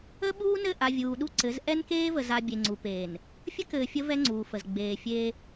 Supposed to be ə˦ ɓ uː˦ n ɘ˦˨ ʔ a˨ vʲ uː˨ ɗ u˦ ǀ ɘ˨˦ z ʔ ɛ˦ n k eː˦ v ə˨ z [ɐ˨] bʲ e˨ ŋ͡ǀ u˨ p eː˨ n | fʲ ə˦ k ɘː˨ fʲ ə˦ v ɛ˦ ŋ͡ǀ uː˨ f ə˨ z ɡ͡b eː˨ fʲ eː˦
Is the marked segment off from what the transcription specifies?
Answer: yes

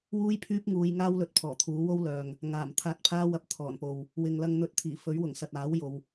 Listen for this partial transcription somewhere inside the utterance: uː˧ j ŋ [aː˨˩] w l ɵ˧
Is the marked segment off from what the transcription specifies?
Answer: yes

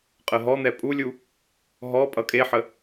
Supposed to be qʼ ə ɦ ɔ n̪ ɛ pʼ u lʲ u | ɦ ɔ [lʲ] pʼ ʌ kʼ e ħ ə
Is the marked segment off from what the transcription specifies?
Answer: yes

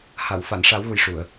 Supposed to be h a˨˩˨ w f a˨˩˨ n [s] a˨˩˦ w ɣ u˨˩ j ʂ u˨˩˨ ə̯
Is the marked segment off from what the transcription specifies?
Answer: yes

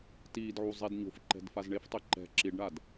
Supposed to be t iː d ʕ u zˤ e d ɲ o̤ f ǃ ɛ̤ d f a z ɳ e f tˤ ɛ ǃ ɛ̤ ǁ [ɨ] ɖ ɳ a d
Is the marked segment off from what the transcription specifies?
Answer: yes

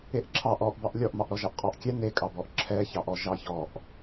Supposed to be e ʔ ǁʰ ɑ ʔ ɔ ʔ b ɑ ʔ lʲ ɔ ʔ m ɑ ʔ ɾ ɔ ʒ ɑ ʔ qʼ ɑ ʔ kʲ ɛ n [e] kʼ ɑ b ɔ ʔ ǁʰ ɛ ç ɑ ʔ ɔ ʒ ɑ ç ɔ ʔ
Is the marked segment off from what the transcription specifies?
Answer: no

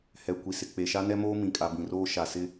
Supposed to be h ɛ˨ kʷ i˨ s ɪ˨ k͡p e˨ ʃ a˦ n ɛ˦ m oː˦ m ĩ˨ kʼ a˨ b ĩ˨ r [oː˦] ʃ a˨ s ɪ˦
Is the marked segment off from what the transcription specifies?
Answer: no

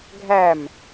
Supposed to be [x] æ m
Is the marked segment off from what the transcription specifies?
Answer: yes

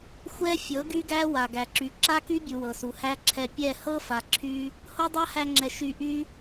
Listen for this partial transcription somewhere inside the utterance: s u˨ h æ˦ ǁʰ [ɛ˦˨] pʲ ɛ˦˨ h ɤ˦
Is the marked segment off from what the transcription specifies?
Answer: yes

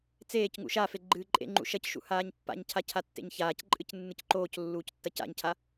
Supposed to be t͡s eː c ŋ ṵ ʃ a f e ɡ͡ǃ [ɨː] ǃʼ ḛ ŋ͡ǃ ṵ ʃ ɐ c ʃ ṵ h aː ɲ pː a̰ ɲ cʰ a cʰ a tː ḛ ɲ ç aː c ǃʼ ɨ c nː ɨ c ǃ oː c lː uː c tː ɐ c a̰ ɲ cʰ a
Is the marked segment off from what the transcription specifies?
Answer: no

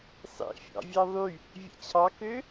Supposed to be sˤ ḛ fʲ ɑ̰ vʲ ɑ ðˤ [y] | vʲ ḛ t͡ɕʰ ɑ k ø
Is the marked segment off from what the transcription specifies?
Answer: no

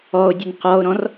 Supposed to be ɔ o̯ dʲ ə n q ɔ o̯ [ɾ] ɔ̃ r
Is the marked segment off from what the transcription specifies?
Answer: no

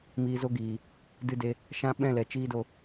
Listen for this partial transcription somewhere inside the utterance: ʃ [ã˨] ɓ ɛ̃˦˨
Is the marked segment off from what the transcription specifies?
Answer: yes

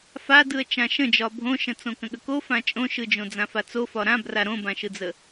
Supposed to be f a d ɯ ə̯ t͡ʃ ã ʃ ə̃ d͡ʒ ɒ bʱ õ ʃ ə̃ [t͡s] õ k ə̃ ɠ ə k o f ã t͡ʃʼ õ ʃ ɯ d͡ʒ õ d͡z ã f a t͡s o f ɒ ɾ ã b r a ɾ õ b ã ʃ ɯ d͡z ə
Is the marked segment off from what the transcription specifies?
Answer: no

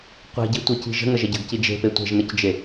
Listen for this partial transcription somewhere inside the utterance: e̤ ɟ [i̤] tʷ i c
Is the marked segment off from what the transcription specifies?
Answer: yes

